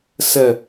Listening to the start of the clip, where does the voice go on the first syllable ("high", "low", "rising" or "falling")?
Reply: low